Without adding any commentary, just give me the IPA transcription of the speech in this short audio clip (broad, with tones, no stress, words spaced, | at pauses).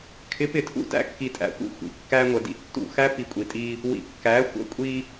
kʰɪ˨˦pɪ˨tʰṵ˦ tæ̰˦kːi˨tʼæ̰˨xʷḭ˦ xʷḭ˨ kːæ˦ŋʷə˨ dḭ˦tːṵ˦˨xæ˦ pi˨kʷʼi˨tʼi˦ | wḭ˨kːæ˨˦xʷə̰˦ kʷʼi˦